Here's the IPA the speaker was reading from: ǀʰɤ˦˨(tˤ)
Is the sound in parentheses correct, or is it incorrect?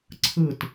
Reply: incorrect